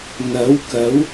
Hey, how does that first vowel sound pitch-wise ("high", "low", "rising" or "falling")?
rising